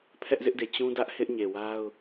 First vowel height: mid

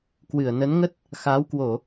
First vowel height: high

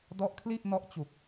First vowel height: mid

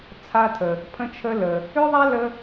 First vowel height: low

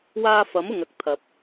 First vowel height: low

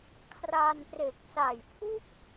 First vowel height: low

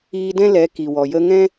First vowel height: high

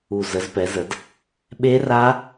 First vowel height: high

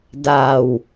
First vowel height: low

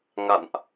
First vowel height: low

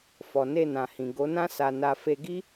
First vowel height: mid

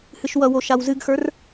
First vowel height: high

